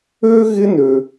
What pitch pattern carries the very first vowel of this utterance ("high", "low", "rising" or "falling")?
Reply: high